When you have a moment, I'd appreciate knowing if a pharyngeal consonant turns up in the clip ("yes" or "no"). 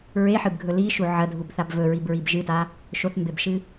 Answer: yes